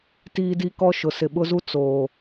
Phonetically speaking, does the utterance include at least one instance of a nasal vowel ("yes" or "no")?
no